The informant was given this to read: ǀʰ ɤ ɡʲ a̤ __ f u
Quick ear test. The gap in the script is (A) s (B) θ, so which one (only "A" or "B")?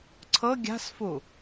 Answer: A